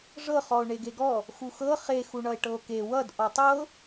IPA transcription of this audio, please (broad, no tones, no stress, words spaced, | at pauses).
ʐɤ χɔo̯ɳeɡeɡɔ | xuxɤ χe xuɳʌe̯ʈɤo̯ke wʌd ʔɔtˤɤ